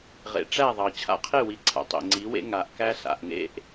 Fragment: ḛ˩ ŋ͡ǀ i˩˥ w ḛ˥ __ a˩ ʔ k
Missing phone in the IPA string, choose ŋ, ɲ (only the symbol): ŋ